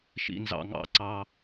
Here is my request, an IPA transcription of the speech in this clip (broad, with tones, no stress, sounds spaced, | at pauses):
ʃ ḭ˨ n z ɑ̰˨ ŋ ɑ̰˨ ǀ ɑ˦